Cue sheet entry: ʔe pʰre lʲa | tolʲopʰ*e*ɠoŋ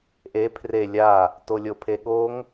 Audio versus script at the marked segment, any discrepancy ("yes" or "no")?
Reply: no